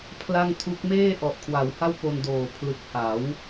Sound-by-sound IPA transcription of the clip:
pʰla˥˩ŋtʰu˦˥k̚ meː˥˩ʔɔ˨˩ʔkʰwa˩˦w ha˥˩wpo˧n doː˨˩ pʰlɯ˨˩k̚ha˩˦w

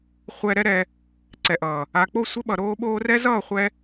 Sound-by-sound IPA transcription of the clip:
χʷɛ˧ɾɛ˦ɾɛ˧ | ǀɛ˨ʔʌː˨ | a˨k͡po˦˨ sʷɘ˧ ɓʌ˨ ɾoː˧ ɓoː˧rɛ˦ zʌː˦˨χʷɛ˧

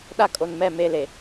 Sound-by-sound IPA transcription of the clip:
ɗa˦kʼo˨nmɛ˦˨ me˦le˨

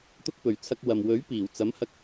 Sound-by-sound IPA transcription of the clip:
t̪ʊ˥k̚pɵ˨˧ɥ t͡sʰɐ˧k̚ wɐ˨m wɵ˨˥ɥpiː˨˩w t͡sɐ˨˥mhɐ˧k̚

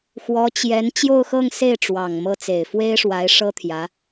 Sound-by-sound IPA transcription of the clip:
xwɔ˧˥t͡ɕjɛ˧˥n t͡ɕjo˥˧ʊ̯xɤ˥˧ŋse˥˩ɪ̯ ʈ͡ʂwɑ˨˩ŋmɤ˥˩ t͡se˨˩ɪ̯fwe˥ɪ̯ʂwa˧˥ɪ̯ ʂɤ˥t̪ʰjä˧˥

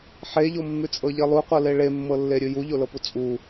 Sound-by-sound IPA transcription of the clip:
ħeʎomːʉt͡sʼɤ ʎelˠuqʷɤle ɭemːɤlːeɾʲʉ juʎolɤpu t͡sʼu

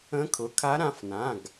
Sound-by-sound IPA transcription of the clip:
ə̃˧˥kʰʊ˩˧˩ kʰa˧˥ɾã˩˧˩f nã˩˧˩ɡ

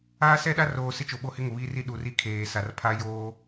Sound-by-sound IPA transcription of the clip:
aː˦sɛ˦ɗa˦roː˨ sɪ˦t͡ʃo˨ɓo˦hɪ˦ ŋʊ˨βiː˦ri˦ ɗu˨ri˦ kʰeː˨sa˨r pʰa˦joː˦

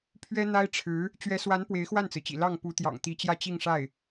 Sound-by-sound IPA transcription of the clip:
pʰɥɛ˥n̪a˥ɪ̯ʈ͡ʂʰɻ̩˧˥ | t͡ɕɥɛ˧˥swa˧˥n pwe˧˥ɪ̯xwa˥˩nt͡sɹ̩˩t͡ɕḭ˨˩ lɑ˥˩ŋ pu˧˥t̪jɑ̰˨˩ŋt̪i˧˥t͡ɕjä˥˧ t͡ɕi˥˧ŋʂa˥˩ɪ̯

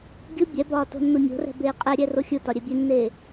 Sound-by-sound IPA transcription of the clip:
ɡʲɯ bʲɛbɒː to̤nːunʲo̤rɛ̤ beːqʼɛɾʲɛ roxʲɯtɒ ɾʲɛbʲenːeː

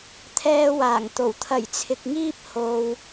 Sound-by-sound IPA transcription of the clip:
t̪ʰɛː˧waː˨˩ŋt̪o˨˩w t̪ʰɐ˨˩jt͡sʰɪ˨k̚ŋiː˥p̚ ho˧w

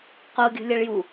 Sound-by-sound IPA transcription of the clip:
qoɡʲo̤ lʲɐɭju

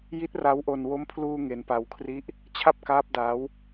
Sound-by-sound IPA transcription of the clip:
ji˦˥t̚ ra˦˥wʔo˧n wo˦˥mpʰluː˧ ŋe˧npa˧wkʰri˦˥ʔ | t͡ɕʰa˥˩p̚ kaː˦˥p̚ daː˦˥w

